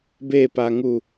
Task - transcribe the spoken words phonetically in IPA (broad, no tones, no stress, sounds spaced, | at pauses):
b e p a ŋ u